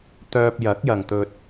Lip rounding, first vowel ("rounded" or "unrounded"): rounded